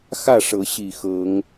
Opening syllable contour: falling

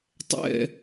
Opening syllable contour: falling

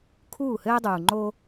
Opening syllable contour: falling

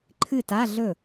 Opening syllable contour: falling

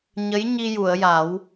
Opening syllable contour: rising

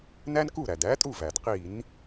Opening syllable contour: high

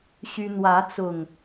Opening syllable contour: high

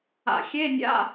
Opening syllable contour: low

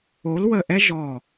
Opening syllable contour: rising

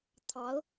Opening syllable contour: rising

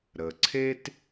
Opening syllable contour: low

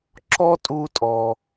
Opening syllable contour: high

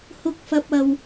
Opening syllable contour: low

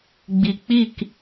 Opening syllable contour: low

